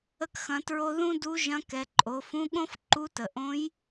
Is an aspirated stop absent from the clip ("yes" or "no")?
yes